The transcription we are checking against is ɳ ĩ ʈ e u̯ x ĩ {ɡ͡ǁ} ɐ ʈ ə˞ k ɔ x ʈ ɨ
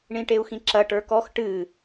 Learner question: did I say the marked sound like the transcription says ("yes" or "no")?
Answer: no